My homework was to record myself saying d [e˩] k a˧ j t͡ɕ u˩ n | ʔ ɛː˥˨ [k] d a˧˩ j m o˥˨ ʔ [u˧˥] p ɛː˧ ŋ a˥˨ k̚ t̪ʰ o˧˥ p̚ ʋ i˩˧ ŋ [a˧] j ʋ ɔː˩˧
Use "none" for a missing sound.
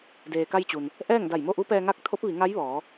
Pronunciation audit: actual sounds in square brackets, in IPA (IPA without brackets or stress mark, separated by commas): eː˩, ŋ, u˧˥, a˧˥